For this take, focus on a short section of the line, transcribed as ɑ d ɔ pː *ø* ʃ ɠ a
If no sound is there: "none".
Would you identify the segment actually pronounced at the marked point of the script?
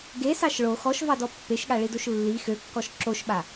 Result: e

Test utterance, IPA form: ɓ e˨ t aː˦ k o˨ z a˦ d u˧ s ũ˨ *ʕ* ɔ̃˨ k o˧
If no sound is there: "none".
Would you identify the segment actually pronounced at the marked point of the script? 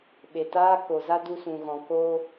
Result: ɣ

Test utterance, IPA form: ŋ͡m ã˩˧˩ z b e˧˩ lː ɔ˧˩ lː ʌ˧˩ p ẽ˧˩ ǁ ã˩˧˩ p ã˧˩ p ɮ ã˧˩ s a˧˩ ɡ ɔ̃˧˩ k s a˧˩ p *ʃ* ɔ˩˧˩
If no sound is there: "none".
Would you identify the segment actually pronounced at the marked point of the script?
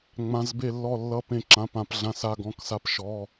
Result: ʃ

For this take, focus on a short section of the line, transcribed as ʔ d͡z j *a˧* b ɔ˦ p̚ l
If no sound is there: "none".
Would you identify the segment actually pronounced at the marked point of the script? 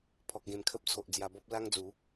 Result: a˧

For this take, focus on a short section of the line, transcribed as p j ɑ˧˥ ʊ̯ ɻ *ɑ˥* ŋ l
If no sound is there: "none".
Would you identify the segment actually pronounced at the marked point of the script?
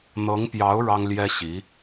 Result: ɑ˥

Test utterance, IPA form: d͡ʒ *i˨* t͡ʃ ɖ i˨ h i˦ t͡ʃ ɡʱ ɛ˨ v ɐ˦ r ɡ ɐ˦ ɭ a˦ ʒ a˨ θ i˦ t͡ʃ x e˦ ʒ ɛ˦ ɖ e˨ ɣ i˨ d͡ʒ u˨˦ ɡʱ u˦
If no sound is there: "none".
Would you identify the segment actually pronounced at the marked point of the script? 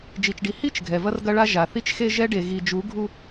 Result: i˨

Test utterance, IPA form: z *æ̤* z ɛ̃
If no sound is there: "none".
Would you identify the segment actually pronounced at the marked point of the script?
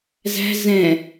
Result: æ̤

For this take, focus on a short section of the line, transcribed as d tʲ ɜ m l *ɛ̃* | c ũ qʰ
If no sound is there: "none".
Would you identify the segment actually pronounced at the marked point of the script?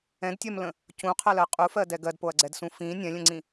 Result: ə̃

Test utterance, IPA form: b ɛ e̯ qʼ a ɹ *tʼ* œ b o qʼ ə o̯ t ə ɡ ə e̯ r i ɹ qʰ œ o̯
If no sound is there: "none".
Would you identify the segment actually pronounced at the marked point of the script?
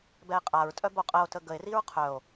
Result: tʼ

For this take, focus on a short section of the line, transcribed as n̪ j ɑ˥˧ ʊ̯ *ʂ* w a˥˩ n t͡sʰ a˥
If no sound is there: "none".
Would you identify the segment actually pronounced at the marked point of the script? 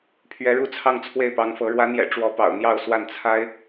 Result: s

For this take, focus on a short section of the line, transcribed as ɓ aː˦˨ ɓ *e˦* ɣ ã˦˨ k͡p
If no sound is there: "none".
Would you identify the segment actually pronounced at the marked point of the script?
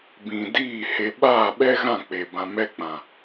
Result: ɛ˦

